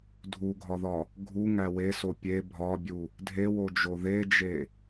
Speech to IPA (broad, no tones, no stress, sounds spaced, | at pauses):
dʱ u ɡʱ ɒ ð ɒ | ɡʱ u ŋ æ w e s o pʲ e bʱ ɒ bʲ u | dʱ e w o d͡ʒ o ð e d͡ʒ e